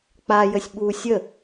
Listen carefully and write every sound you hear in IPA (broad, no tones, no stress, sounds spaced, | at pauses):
k͡p a j ə sʲ ɓ u sʲ ə